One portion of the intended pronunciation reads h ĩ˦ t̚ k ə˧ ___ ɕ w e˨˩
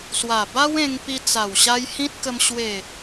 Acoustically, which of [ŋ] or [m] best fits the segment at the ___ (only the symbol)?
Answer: m